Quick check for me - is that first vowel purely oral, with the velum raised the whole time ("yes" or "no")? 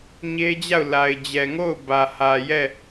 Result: yes